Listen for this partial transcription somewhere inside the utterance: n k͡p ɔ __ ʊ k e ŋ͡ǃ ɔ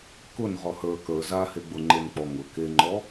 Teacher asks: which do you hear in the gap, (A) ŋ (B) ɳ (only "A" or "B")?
A